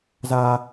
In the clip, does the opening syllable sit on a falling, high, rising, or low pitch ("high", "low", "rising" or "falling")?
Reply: high